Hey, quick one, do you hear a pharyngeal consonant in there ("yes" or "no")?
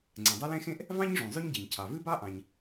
no